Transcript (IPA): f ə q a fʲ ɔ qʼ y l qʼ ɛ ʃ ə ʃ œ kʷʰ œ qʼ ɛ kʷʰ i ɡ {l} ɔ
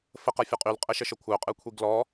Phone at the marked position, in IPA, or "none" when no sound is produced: l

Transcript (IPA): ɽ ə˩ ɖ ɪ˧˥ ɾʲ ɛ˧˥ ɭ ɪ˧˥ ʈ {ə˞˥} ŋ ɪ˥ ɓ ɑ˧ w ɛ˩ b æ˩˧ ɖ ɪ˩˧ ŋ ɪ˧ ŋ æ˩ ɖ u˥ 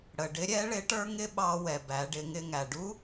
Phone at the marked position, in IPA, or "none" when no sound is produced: ə˞˥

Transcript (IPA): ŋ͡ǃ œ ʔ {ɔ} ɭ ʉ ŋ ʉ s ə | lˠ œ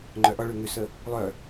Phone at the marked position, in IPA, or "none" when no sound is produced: ɔ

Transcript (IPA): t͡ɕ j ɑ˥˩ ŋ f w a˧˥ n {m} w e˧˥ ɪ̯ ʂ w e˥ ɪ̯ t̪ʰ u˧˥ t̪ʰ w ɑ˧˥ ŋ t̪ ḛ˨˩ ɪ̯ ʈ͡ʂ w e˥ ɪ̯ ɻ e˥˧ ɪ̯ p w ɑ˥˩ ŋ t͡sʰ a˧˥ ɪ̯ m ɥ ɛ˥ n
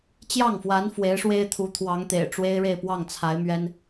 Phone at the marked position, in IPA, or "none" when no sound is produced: f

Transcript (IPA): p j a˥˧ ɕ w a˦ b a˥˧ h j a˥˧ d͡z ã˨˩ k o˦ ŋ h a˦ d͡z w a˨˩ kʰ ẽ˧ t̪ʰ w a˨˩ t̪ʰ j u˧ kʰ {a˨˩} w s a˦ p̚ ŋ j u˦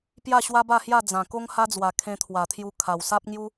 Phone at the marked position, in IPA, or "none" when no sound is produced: a˨˩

